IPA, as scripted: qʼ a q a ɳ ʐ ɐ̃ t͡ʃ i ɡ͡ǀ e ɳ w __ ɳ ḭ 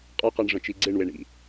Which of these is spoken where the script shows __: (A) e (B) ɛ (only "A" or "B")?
A